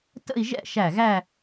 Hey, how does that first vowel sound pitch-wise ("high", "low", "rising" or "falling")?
falling